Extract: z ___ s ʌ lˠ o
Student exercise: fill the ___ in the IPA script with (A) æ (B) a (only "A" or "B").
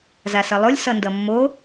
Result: B